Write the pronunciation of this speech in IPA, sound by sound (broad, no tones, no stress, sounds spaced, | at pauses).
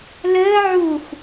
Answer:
l əː ʕ u x